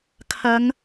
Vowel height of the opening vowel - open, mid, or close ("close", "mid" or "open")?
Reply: open